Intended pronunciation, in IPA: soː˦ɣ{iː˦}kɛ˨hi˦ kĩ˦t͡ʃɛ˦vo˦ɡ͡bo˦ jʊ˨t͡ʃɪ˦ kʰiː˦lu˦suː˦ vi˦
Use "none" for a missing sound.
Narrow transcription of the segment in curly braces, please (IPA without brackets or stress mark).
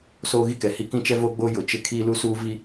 i˦